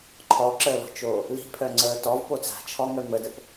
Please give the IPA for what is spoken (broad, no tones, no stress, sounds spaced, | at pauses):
ǃʰ ɔ ǁ əː l ɔ̤ t͡ʃ oː | l i̤ pʰ œ ŋ͡ǀ əː t ɔ v p o t͡s a̤ t͡ʃʰ ɔ ŋ œ m ə d ə p